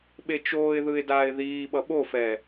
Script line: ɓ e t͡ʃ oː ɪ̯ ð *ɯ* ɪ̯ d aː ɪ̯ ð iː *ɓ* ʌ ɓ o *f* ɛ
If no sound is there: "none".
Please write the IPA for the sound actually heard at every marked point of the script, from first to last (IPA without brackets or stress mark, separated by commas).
ɯ, ɓ, f